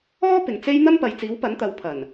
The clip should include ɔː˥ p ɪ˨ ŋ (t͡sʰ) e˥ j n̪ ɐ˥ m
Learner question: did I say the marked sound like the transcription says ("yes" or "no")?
no